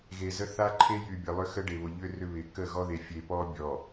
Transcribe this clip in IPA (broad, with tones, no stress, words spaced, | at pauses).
ɣe˨zə˦ θa˦ǃʰe˦jy˨bʲə˨ lˠʏ˦xə˦ɖe˨βʊ˨ ʎʏ˦ rʏ˦βɪ˨ kə˦˨ɣɔ˦ðe˨ fʲe˨pɔ˦bʲɔ˨